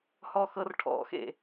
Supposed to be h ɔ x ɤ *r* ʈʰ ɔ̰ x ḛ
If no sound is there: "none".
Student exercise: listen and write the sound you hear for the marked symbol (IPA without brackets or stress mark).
r